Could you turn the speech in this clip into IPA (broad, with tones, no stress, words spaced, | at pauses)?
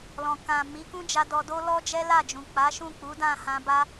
lɔ̃˨kã˨ mi˨˦kũ˦d͡ʒa˧ dɔ˧do˦ lɔ˦d͡ʒɛ˦la˦˨d͡ʒũ˨ k͡pa˨˦ʃũ˦˨k͡pu˨˦ dã˦˨ hã˧ba˦